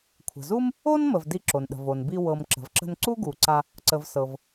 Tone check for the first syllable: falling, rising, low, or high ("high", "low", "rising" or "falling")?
low